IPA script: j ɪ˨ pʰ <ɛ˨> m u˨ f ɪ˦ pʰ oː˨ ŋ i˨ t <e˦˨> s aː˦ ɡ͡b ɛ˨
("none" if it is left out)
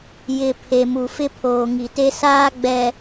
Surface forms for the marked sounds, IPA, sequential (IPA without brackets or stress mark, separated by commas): e˨, e˦